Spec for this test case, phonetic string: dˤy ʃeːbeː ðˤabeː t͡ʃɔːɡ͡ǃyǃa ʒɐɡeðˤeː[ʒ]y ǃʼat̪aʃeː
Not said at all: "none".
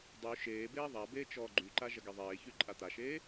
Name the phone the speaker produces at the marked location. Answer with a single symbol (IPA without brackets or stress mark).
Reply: ç